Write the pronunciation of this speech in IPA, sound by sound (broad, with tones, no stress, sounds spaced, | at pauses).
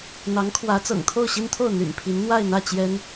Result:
n̪ ɑ˧˥ ŋ kʰ w ä˧˥ t͡s ɤ̰˨˩ ŋ t̪ʰ o˥˩ ʊ̯ ɕ i˥ n t̪ʰ o˥˩ ʊ̯ n̪ y̰˨˩ n pʰ i˧˥ n n̪ w a˥˧ ɪ̯ n̪ ä˥˩ t͡ɕ j ɛ˥ n